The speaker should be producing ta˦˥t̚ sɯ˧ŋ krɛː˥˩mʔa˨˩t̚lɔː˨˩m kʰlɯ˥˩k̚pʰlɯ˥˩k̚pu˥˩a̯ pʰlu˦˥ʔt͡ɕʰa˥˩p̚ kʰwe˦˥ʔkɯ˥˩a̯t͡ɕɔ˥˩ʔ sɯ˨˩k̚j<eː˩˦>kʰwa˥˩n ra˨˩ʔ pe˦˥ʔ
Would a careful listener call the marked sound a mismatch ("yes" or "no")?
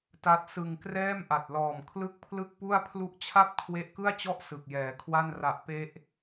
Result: yes